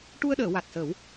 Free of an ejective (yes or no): yes